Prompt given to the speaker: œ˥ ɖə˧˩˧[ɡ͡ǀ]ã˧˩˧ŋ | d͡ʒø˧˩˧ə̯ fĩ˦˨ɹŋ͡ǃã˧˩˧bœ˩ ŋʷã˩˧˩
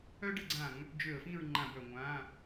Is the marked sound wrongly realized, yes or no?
no